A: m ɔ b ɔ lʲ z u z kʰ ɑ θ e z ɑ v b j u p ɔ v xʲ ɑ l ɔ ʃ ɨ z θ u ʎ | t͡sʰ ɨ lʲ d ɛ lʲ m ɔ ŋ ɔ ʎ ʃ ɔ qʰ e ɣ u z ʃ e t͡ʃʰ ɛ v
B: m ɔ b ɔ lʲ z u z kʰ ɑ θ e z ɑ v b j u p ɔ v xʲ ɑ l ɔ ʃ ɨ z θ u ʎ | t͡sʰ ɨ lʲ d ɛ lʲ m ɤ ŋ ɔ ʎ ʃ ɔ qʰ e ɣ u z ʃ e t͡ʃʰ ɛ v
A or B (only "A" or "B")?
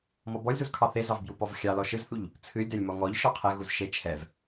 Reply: A